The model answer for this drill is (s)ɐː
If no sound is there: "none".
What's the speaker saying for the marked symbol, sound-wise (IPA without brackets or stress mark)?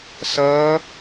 s